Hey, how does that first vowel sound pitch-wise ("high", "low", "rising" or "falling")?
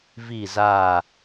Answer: falling